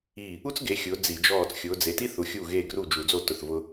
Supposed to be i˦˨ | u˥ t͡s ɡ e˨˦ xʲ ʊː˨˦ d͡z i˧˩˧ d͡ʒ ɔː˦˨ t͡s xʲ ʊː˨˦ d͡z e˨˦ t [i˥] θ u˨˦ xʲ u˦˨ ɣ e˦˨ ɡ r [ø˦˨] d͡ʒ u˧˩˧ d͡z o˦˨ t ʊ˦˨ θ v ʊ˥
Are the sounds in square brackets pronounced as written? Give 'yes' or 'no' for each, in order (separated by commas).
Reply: yes, no